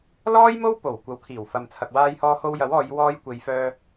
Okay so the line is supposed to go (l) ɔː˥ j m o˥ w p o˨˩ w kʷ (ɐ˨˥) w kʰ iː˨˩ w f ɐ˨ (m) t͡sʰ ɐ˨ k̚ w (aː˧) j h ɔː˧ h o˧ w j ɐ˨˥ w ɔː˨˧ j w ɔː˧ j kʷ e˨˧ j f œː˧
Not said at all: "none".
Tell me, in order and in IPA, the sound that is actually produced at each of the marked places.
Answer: l, ɐ˨˥, m, aː˧

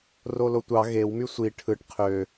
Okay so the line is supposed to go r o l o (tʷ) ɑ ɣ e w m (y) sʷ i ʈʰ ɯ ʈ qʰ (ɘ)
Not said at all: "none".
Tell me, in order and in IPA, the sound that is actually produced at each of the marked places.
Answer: tʷ, y, ø

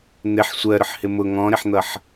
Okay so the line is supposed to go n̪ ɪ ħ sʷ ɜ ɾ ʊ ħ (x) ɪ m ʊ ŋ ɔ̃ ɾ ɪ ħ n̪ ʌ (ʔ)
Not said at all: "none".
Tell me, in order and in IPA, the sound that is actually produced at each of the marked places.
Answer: h, ħ

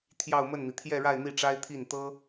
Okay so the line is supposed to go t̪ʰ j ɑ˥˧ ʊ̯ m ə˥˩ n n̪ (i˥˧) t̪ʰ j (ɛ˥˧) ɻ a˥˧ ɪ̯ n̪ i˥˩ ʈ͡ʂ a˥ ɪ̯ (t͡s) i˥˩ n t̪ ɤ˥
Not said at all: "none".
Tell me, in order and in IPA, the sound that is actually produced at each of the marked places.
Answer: i˩, ɛ˥˧, t̪ʰ

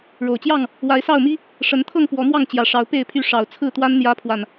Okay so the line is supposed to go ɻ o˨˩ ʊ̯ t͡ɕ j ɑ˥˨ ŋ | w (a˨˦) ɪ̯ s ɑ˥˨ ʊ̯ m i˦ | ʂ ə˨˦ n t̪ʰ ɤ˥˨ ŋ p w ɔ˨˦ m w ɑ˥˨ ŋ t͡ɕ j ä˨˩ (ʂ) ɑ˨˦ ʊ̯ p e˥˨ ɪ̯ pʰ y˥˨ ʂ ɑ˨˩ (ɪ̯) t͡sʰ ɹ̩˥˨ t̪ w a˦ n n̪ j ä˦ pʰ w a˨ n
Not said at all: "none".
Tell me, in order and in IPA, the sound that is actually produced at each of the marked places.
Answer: a˨˦, ʂ, ʊ̯

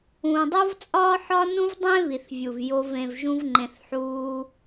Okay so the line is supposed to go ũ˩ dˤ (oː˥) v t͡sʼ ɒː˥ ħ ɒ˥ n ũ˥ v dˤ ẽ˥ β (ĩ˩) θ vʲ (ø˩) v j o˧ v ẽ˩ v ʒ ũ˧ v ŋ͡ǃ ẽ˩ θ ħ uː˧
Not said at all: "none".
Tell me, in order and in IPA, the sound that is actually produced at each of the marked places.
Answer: o˥, i˩, u˩

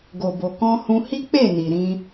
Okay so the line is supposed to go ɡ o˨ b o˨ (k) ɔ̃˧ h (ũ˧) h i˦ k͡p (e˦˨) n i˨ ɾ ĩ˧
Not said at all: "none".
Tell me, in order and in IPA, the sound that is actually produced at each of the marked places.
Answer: k, ũ˧, e˦˨

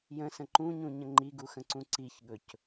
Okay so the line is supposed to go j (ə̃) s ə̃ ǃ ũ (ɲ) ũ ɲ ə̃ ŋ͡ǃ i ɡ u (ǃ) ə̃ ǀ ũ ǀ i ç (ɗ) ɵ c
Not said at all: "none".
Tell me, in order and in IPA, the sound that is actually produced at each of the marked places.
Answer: ə̃, ɲ, x, ɠ

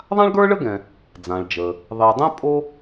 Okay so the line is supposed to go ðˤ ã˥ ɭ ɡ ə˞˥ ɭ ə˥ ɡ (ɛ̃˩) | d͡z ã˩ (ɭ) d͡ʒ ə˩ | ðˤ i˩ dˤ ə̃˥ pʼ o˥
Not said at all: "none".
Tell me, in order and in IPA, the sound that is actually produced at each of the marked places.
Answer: ɛ̃˩, ɭ

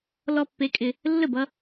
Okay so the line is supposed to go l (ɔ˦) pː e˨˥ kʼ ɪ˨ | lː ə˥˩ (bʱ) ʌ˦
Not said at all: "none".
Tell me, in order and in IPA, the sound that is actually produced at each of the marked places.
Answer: ɔ˦, b

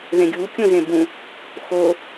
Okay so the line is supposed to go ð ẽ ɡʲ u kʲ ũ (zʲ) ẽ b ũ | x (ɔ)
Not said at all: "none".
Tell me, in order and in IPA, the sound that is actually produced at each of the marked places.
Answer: z, o

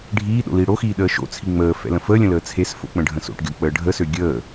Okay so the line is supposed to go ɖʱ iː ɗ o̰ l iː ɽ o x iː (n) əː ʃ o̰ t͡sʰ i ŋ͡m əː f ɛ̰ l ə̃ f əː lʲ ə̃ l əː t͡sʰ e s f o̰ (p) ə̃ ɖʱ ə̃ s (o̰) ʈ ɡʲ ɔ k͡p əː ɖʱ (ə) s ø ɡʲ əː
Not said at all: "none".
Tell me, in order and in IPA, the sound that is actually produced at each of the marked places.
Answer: ɗ, k͡p, o̰, ə

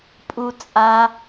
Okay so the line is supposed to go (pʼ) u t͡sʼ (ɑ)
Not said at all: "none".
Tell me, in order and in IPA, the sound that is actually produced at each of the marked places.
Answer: pʼ, a

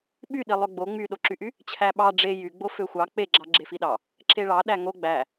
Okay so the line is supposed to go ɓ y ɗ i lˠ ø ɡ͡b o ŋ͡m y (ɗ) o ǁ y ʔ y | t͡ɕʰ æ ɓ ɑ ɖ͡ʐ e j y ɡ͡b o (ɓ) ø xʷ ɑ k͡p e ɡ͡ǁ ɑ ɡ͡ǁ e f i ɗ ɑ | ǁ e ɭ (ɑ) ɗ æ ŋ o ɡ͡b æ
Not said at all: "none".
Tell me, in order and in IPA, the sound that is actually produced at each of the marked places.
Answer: ɗ, f, ɑ

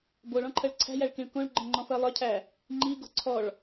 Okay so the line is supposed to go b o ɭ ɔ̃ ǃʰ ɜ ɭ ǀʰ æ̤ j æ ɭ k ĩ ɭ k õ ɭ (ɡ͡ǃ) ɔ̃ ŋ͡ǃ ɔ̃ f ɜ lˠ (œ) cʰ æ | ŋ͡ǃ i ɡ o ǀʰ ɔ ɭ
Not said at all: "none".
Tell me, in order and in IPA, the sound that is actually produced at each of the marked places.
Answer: ɡ͡ǃ, œ

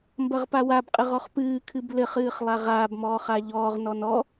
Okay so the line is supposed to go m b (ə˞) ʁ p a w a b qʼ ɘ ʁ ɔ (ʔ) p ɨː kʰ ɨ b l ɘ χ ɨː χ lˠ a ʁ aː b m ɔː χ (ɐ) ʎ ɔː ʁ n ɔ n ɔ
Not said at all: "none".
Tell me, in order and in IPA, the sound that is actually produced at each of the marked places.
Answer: ɐ, χ, a

